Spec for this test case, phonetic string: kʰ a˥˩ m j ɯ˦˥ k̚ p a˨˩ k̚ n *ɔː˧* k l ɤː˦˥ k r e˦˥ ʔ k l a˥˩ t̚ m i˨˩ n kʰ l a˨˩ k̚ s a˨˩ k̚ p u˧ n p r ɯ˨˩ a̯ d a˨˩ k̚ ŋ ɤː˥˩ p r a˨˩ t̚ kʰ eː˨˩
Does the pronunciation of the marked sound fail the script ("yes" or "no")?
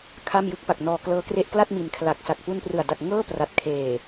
no